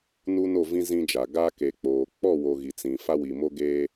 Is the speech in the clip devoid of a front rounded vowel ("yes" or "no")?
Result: yes